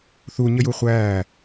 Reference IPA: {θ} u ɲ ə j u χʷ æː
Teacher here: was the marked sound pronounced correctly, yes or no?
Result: yes